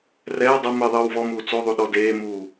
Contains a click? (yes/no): no